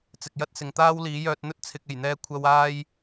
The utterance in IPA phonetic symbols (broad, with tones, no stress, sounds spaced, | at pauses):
t͡s ɪ˨ k̚ j ɐ˥ t̚ s ɪ˨ ŋ t̪ aː˥ w l iː˨˥ j œː˧ t̚ n̪ ɵ˥ t̚ t͡sʰ ɪ˨ k̚ e˨˩ j n̪ ɛː˧ kʷʰ ɐ˧ w aː˧ j